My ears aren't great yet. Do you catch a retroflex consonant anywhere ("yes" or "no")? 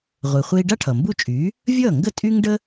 yes